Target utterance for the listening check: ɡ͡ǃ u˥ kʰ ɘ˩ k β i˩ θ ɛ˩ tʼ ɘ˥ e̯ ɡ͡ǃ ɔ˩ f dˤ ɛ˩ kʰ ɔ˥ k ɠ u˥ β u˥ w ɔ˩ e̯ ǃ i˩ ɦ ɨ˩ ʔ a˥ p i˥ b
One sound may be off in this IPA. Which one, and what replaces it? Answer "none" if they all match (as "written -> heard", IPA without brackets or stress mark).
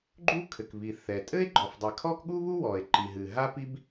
ʔ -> ɦ